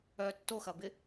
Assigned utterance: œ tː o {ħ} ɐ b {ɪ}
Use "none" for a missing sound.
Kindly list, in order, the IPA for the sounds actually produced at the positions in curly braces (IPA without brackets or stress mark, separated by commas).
x, ɪ